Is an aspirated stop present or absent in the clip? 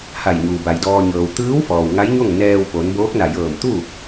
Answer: absent